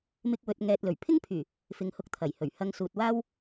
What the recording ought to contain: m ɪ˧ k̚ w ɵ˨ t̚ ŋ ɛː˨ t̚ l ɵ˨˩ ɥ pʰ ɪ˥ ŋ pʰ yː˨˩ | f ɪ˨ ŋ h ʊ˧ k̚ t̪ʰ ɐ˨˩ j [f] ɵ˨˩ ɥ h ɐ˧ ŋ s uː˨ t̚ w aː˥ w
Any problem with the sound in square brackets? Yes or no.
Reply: yes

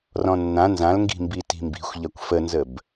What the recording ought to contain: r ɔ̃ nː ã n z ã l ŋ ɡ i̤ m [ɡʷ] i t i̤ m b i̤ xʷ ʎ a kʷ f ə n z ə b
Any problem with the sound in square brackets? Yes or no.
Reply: yes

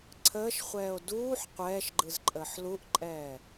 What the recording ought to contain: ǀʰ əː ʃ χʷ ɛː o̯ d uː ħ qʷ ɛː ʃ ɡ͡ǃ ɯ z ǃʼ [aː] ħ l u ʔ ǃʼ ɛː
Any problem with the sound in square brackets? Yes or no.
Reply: yes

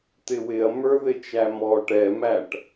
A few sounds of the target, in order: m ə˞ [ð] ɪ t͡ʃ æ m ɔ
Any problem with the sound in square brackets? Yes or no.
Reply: no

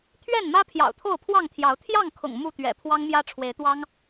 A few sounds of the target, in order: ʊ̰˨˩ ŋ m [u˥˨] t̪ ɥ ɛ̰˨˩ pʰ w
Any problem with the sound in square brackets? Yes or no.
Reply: no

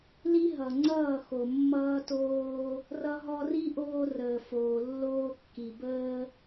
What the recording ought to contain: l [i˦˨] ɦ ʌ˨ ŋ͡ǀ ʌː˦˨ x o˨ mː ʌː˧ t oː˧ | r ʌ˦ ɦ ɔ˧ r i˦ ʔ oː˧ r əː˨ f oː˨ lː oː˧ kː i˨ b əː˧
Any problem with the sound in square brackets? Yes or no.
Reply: yes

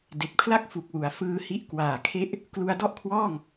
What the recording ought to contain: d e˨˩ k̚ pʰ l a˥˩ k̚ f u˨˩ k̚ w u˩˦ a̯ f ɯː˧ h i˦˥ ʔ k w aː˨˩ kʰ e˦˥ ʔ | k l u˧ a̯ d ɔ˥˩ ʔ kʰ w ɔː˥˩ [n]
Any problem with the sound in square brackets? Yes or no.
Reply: yes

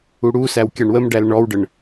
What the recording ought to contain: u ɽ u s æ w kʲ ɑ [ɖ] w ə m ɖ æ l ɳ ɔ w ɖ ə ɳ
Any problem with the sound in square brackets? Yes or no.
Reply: yes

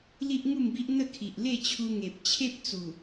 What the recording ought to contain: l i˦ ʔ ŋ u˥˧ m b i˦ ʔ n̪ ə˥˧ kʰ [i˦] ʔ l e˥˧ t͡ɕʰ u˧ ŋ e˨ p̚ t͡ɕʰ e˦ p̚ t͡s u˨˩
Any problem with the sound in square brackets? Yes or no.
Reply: yes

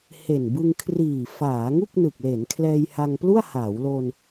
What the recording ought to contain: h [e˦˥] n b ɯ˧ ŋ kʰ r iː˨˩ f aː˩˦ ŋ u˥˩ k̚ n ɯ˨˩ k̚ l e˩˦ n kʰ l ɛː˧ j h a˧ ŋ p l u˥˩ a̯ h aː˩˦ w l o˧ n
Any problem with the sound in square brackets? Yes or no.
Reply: yes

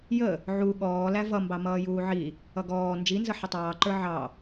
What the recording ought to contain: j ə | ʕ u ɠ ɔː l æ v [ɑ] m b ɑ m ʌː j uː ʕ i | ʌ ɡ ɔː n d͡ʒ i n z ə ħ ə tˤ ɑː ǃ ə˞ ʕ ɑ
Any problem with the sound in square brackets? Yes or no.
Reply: yes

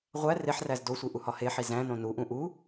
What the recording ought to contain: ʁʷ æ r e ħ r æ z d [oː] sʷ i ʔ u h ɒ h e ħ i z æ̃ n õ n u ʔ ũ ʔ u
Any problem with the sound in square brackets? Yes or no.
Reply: yes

